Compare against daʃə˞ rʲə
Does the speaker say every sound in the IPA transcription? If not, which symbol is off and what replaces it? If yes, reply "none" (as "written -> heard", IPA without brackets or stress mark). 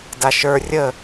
none